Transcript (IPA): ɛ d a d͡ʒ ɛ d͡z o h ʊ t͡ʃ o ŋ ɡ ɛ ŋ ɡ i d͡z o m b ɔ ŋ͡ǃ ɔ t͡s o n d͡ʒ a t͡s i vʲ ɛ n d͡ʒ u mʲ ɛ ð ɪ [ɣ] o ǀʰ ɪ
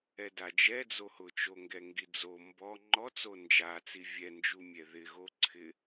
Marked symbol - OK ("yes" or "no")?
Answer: yes